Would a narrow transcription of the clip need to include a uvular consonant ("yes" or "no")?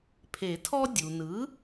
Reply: no